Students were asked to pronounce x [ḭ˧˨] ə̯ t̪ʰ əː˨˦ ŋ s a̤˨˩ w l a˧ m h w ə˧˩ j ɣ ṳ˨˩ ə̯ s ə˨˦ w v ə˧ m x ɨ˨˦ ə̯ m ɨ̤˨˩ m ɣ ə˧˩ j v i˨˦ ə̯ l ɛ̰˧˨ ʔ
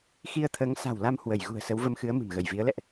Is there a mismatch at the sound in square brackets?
yes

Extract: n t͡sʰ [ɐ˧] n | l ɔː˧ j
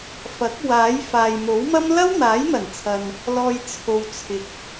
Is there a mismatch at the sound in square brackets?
yes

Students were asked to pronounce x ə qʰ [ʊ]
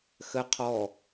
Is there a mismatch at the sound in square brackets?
yes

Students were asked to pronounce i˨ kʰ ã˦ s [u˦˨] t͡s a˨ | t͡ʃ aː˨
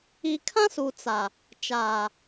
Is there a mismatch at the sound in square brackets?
yes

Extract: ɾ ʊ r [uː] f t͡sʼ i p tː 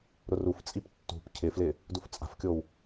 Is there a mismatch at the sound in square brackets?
yes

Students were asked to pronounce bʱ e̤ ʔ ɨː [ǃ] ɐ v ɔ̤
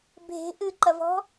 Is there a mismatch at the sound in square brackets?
no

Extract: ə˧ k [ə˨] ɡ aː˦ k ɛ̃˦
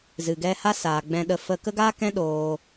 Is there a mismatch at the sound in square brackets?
yes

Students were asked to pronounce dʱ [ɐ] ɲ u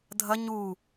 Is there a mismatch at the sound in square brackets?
no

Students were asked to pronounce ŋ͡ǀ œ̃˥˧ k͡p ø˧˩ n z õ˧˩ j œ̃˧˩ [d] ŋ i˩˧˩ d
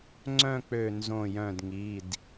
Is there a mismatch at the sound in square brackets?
no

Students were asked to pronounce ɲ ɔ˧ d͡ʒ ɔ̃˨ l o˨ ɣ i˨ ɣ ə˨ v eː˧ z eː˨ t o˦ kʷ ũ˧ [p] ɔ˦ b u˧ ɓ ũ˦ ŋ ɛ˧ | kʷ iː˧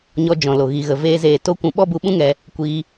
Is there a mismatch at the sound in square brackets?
yes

